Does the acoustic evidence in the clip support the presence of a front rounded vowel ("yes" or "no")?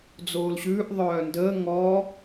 yes